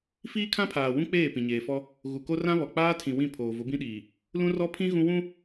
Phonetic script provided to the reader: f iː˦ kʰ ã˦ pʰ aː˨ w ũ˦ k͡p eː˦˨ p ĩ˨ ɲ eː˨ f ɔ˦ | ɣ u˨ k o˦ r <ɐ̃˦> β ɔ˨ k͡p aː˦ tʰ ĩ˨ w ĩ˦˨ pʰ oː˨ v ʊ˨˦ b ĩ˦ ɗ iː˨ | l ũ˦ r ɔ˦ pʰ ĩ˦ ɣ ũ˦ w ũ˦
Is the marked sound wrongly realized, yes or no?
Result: yes